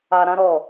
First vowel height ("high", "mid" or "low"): low